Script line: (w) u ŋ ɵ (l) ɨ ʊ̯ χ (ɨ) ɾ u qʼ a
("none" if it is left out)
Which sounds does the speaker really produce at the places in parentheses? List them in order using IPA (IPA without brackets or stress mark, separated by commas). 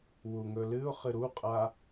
w, l, ɨ